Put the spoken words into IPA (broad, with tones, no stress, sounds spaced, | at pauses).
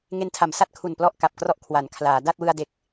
ŋ e˧ n tʰ a˨˩ m s a˦˥ t̚ kʰ u˨˩ n p l ɔ˥˩ ʔ k a˨˩ p̚ k r ɔ˥˩ ʔ kʰ w a˩˦ n kʰ l aː˩˦ d a˥˩ t̚ w ɯ˧ a̯ d e˨˩ k̚